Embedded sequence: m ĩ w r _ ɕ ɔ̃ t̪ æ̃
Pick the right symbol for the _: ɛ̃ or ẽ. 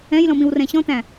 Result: ɛ̃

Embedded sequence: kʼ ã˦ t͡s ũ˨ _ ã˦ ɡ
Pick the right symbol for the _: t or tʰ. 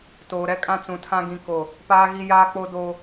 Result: tʰ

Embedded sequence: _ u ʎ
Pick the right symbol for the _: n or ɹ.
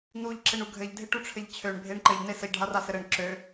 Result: n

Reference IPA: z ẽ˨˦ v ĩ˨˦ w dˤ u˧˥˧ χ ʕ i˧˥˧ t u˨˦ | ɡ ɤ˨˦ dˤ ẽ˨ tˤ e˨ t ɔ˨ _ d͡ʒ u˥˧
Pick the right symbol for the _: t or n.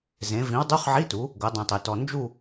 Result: n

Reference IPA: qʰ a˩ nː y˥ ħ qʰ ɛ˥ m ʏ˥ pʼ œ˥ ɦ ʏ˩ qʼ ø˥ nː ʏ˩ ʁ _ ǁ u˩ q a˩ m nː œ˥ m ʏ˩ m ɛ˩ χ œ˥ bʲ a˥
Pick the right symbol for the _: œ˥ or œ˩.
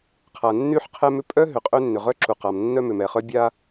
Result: œ˥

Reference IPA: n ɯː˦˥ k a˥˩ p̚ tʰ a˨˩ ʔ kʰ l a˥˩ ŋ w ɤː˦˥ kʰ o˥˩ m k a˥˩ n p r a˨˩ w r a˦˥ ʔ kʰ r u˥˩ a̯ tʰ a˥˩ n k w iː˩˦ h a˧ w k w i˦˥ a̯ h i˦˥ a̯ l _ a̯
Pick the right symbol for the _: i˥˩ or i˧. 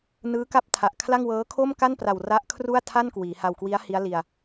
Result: i˧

